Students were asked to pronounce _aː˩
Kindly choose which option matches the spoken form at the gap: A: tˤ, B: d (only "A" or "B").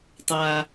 A